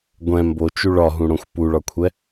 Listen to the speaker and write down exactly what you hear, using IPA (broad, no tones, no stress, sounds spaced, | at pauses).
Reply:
ɡʷ ɛ̃ m b o t͡ʃ u ɭ ɒ ɦ ũ ɽ õ xʷ p u ɭ ɒ kʷʰ ɛ